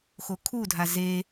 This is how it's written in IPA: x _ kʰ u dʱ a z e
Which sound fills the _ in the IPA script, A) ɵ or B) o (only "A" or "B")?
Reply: B